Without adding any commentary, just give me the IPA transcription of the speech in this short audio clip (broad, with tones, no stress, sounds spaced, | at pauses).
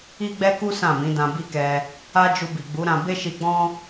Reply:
i˦ ɡ͡b ɛ˦ k u˦ s ã˦˨ m ĩ˨˦ d ã˧ b i˦ k ɛ˧ | a˦ d͡ʒ u˧ b i˨ ɡ͡b u˨˦ ɾ ã˧ b e˦ ʃ i˧ ɡ͡b ɔ̃˦